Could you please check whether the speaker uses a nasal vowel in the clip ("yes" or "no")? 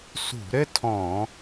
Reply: yes